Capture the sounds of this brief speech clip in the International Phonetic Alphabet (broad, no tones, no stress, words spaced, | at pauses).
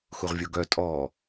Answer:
xuʁvʲoɡœ tʼɔ